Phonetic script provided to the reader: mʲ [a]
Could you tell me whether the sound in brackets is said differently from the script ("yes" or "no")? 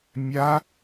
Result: no